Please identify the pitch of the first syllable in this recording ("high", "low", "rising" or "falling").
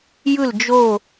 falling